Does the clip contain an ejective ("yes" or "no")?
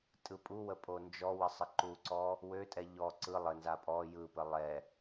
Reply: yes